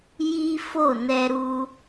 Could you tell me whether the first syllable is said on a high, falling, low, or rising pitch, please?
high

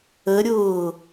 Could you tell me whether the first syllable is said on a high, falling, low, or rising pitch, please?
rising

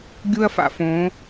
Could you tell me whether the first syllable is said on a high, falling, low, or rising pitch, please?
high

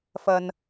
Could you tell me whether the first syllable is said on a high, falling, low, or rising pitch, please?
low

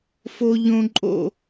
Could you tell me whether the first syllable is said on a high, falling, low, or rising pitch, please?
high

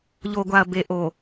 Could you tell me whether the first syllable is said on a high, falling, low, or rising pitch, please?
low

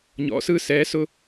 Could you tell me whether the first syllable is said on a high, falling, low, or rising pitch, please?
rising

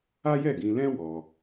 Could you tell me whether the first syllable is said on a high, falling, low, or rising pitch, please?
high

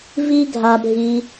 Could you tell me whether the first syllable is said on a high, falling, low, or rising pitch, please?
high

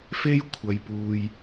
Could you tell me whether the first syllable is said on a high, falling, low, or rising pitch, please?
high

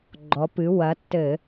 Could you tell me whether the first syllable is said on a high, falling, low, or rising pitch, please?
rising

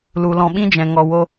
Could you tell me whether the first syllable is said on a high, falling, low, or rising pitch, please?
low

